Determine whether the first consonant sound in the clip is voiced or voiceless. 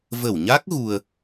voiced